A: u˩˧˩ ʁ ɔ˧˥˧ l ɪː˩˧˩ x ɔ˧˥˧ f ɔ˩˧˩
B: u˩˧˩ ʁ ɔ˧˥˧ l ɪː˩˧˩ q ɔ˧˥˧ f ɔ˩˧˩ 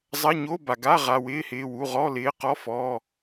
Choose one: B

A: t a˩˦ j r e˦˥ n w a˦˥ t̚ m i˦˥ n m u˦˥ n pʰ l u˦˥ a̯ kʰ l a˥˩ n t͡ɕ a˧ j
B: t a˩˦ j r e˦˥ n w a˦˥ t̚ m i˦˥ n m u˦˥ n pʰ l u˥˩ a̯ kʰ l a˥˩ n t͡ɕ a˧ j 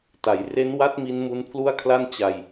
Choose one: B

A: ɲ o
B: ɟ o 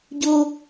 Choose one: B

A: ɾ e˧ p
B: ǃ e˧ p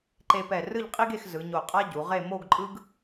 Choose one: B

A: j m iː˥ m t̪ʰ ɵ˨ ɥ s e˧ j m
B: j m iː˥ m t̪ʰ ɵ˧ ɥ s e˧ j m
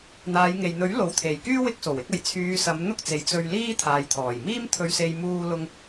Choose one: B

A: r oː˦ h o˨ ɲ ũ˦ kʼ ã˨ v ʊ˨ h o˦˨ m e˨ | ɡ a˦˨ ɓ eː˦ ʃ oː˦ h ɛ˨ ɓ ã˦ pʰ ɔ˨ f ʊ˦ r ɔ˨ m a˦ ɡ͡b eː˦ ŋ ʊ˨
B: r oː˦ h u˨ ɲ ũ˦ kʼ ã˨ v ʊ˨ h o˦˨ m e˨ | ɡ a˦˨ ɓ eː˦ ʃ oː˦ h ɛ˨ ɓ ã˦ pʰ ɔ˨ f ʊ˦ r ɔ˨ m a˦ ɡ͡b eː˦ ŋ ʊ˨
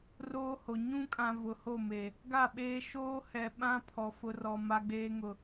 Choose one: A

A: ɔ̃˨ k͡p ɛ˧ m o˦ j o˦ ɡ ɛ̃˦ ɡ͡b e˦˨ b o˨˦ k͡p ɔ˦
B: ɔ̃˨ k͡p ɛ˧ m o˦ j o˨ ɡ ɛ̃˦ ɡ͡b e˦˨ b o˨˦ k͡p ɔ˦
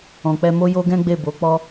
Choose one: A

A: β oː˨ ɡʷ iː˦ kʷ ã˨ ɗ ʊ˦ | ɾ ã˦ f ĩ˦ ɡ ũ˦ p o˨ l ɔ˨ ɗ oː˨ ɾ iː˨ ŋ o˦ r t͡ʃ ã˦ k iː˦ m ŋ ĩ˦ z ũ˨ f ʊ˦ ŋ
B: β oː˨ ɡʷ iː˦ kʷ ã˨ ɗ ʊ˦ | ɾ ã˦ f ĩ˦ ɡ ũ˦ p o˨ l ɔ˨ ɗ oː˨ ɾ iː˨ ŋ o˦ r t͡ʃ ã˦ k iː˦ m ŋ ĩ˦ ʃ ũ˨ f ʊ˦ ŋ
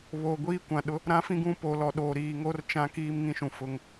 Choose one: B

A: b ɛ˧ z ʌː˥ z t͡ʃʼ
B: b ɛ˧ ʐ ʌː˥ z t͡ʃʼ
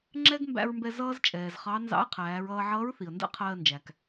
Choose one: A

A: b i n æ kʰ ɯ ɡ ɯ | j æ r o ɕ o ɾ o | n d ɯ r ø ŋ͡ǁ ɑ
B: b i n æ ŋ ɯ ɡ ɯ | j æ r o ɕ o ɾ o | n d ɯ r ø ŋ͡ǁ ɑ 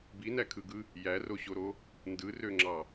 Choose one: A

